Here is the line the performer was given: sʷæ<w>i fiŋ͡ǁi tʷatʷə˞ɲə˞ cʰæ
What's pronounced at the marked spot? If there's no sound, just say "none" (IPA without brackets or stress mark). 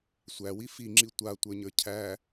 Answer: w